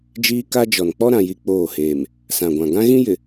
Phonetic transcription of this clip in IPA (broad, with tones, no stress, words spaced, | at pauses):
d͡ʒiː˦ka˦d͡ʒɔ˨n k͡pɔ˦ɾã˨ji˨ k͡poː˦˨heː˨m | sã˨ɡʷã˨ ɡã˦ɣĩ˦jɪ˨